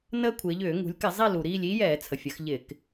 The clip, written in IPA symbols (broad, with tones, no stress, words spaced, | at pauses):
nəː˦˥kʷʰɪː˩˧ ʎʏː˧˩˧ ŋṳ˩˧lʲkɪ˧˩˧zˤi˦˨ lu˩ɾiː˦˨lʲ iː˦˥jɛː˧˩˧t͡sʰə˩fʲə˩˧x ʎɪ˧˩˧k